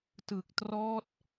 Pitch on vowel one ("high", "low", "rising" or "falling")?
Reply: low